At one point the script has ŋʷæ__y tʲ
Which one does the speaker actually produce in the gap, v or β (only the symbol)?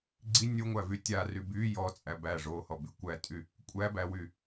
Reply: v